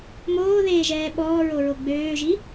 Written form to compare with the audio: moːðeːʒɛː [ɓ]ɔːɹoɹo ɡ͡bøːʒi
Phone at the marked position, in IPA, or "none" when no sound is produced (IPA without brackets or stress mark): ɓ